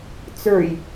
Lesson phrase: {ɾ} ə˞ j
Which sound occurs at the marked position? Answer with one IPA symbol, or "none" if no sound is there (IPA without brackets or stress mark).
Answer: t͡s